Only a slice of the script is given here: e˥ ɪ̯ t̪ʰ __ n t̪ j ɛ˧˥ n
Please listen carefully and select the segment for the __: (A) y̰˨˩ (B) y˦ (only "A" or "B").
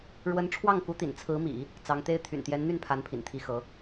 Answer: A